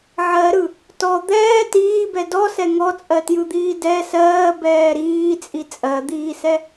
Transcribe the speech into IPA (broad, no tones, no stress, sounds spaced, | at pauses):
ʕ ɜ ɾ ɯ | t ɔ d̪ ɛː t iː b ɛ d ɔ s ɛ ŋ ɔ t͡sʼ ɜ t j ɯ d̪ iː d ɛ s ɜː b ɛː ɾ iː t͡sʼ i t͡sʼ ɜ d̪ iː s ɛ